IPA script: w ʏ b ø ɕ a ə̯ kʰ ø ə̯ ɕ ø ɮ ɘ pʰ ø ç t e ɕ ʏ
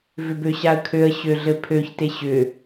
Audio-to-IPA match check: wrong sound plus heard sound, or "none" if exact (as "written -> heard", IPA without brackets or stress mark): w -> v